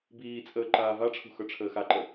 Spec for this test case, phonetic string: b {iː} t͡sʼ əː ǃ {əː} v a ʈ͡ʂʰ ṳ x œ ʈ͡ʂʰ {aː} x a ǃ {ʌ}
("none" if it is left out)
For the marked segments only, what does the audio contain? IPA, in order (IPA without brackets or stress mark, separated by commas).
iː, aː, əː, ə